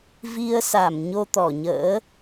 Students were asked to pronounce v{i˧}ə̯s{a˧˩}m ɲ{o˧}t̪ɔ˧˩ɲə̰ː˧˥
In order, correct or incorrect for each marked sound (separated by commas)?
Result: correct, correct, correct